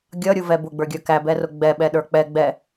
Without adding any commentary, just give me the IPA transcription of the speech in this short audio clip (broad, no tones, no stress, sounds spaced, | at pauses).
ɡʲ ʌ ɾʲ u v ɛ b ʊ ɡ͡b ə˞ ɡʲ ə˞ k æ b ɛ r ʊ ɡ͡b ɛ ɓ ɛ ɗ ə˞ k͡p ɛ ɡ͡b ɛ